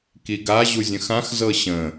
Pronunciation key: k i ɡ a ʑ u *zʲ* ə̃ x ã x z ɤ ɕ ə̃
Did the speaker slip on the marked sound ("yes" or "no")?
no